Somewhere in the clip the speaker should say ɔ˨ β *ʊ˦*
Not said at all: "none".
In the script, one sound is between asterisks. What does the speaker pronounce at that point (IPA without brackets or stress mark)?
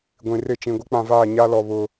ʊ˨